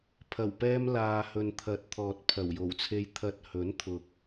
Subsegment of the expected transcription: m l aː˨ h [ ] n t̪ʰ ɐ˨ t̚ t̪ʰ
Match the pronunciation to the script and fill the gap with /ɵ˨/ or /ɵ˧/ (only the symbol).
ɵ˨